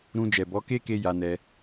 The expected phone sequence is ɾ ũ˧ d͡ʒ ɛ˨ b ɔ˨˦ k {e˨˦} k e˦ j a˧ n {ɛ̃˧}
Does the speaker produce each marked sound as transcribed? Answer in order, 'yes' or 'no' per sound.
no, no

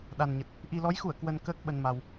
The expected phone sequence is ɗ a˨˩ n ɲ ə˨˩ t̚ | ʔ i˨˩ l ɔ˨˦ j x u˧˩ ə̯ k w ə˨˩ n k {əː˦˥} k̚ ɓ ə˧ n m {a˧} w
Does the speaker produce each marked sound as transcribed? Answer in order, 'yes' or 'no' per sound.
yes, yes

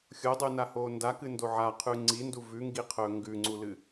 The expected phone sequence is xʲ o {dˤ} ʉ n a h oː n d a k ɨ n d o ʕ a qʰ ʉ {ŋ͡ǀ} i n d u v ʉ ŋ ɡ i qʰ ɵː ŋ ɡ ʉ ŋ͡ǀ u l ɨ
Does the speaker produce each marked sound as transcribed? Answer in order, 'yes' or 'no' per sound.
yes, yes

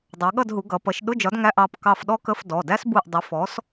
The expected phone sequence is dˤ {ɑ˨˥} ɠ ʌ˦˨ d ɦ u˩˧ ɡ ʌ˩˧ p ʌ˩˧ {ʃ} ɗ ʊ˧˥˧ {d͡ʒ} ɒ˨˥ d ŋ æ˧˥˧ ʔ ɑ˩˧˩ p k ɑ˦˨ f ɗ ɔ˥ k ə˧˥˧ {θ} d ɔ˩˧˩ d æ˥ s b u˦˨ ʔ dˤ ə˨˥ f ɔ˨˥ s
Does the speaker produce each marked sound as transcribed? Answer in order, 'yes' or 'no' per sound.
no, yes, yes, no

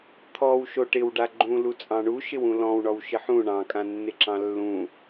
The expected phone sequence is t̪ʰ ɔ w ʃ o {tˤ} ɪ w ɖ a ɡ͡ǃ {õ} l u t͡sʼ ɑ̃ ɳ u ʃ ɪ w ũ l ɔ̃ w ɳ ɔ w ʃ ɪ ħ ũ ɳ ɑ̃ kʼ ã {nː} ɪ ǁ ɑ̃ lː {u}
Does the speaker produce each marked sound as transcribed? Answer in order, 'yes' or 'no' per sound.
no, no, yes, no

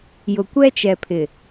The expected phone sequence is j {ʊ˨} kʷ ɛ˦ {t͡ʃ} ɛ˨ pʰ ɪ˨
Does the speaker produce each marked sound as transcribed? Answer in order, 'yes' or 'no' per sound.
yes, yes

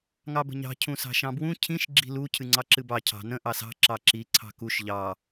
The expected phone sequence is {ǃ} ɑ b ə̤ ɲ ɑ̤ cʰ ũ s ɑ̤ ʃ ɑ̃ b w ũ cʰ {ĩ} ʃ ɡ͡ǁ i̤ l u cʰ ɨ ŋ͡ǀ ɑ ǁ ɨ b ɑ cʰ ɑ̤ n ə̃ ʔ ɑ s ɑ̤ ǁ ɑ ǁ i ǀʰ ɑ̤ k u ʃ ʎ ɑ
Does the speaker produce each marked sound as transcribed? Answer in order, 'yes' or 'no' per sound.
no, yes

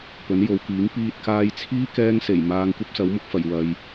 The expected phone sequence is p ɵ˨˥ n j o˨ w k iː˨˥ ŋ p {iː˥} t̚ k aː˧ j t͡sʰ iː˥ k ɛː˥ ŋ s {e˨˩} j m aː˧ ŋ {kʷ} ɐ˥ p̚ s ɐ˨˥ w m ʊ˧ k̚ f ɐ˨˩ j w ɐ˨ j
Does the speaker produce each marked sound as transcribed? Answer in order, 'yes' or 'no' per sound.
no, yes, yes

